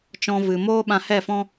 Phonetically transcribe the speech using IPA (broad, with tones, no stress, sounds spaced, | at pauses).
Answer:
t͡ʃ ɔ̃˧ v ɨ˨ m oː˦ ɓ ã˧ h ɛ˦˨ f ɔ̃˦